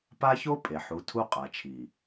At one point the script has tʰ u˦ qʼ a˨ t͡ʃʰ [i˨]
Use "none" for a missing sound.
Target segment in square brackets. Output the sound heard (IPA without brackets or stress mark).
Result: i˨